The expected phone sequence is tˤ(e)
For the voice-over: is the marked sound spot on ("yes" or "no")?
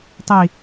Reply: no